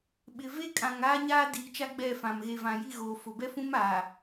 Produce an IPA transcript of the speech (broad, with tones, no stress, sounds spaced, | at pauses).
ɓ ɪ˨ v e˦ kʼ ã˨ ŋ aː˦ ɲ aː˦ d iː˨ t͡ʃ a˦ ɡ͡b ɛ˦˨ f ã˨ m ɣ e˨ v ã˨ j i˦˨ ɣ oː˨ f ʊ˨ b ɛ˦ f ũ˦ m aː˨